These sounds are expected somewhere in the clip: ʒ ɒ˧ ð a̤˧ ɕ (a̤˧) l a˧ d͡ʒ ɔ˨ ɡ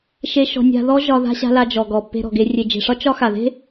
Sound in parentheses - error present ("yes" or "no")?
no